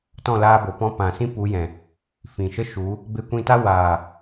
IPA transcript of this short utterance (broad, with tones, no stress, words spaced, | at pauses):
tɔ̃˦˨laː˧bo˨pɔ̃˧ pã˨sĩ˦pu˨˦jɛ̃˨ | fĩ˨ʃə˦ʃu˨˦ | be˧ kʷĩ˧ta˦ waː˨